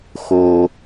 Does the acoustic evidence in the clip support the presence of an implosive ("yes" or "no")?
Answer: no